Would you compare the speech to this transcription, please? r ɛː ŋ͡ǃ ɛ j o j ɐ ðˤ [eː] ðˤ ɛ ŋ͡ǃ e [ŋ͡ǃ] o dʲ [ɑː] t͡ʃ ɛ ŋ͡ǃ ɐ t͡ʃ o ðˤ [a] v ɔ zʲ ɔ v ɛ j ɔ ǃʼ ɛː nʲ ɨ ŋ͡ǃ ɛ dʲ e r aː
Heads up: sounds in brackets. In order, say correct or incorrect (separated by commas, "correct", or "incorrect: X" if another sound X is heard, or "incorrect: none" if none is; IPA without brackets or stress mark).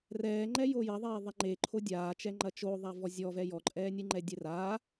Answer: correct, incorrect: ǃʰ, incorrect: aː, correct